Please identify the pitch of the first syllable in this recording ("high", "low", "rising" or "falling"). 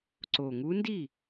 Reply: low